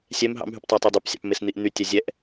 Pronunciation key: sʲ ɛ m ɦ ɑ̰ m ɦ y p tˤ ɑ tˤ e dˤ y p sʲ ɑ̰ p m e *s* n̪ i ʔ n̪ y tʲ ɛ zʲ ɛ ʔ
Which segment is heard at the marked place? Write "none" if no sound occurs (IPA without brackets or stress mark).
s